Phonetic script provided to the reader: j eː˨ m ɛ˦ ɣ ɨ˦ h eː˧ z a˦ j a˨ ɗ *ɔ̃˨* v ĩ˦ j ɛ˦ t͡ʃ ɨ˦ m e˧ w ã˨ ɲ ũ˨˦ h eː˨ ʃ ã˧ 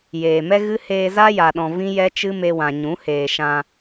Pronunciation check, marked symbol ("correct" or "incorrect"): correct